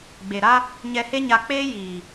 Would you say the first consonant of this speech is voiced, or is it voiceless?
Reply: voiced